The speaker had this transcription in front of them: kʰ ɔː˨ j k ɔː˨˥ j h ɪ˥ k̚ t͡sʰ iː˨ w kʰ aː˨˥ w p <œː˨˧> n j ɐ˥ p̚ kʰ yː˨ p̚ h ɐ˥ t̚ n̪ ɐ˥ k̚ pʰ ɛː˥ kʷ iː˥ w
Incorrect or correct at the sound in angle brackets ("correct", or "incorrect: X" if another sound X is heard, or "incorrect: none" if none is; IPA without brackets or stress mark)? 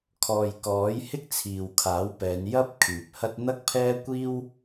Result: incorrect: ɛː˨˧